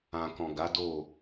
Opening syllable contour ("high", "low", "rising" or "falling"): low